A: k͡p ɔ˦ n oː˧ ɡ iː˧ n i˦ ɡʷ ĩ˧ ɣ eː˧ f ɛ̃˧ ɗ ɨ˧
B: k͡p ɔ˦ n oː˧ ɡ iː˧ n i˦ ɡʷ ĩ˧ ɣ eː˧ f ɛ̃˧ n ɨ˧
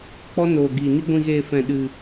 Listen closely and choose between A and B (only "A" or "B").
A